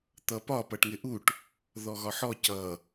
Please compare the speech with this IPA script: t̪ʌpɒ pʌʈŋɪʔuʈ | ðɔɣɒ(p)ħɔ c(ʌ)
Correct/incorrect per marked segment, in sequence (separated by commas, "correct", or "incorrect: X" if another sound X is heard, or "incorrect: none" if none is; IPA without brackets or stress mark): incorrect: none, correct